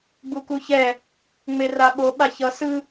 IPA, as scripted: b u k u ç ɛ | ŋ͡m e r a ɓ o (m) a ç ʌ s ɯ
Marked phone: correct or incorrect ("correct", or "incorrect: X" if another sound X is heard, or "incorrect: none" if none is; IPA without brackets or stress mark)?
incorrect: ɓ